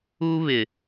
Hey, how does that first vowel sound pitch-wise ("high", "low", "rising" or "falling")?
high